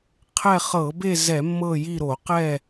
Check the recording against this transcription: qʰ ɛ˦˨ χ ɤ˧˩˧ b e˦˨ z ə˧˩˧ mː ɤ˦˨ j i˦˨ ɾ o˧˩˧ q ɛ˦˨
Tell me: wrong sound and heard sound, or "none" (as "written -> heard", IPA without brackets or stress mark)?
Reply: ə˧˩˧ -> ɛ˧˩˧